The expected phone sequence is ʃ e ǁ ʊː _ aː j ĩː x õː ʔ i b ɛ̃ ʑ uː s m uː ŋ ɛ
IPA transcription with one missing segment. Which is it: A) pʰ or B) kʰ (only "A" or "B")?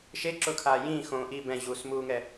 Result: B